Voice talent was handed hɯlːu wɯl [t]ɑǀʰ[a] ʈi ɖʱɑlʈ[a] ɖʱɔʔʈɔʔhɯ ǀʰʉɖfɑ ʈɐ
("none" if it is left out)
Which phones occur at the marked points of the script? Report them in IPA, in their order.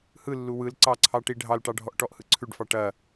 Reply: ǀ, ɑ, ɑ

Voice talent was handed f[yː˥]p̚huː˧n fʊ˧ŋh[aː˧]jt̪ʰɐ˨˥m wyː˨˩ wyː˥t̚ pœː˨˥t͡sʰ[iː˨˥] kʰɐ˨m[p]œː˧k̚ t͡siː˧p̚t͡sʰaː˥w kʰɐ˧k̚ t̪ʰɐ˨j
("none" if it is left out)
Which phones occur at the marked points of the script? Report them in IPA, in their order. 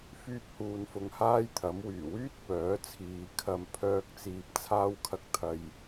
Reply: yː˥, aː˥, iː˨, pʰ

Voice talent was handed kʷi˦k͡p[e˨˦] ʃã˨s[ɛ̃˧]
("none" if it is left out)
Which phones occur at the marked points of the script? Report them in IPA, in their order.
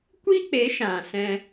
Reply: e˨˦, ɛ̃˧

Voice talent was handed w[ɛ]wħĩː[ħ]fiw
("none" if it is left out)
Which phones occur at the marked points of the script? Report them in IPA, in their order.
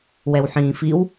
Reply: ɛ, none

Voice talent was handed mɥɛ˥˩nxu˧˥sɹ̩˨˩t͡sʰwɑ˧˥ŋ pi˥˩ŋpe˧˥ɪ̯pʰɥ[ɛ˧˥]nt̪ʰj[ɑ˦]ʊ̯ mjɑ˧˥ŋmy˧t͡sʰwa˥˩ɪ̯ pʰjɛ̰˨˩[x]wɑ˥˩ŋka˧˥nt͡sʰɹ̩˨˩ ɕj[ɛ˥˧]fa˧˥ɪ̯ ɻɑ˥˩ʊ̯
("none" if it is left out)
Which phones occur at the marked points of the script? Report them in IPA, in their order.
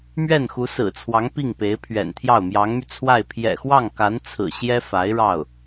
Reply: ɛ̰˨˩, ɑ˥˩, x, ɛ˥

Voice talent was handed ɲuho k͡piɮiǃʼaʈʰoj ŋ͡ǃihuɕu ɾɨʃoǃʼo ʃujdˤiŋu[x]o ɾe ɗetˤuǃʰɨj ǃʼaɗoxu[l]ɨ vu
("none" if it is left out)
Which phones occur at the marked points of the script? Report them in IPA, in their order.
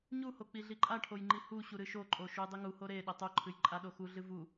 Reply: h, ɮ

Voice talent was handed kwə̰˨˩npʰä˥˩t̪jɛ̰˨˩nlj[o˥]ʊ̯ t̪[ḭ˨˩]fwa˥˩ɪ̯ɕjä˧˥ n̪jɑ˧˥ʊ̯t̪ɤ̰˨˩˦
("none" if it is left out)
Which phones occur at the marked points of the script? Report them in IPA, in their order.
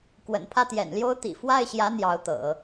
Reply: o˥, ḭ˨˩

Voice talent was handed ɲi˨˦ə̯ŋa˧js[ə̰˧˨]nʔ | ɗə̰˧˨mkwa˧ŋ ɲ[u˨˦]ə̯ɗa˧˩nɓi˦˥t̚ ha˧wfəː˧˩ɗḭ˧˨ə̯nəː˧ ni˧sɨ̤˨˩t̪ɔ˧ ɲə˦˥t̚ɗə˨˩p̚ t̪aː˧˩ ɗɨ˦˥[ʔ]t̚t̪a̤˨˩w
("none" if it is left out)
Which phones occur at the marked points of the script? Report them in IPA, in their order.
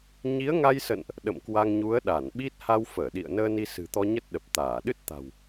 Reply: ə̰˧˨, u˨˦, none

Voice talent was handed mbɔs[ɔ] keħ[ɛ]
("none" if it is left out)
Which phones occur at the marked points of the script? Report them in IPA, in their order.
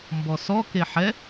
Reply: ɔ, ɛ

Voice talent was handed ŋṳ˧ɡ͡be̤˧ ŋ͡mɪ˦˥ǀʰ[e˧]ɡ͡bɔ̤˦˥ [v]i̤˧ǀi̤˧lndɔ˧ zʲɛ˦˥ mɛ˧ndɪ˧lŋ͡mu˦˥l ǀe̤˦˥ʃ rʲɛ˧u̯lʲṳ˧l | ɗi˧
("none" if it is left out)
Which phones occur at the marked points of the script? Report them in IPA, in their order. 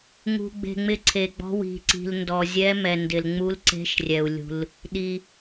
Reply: e˧, w

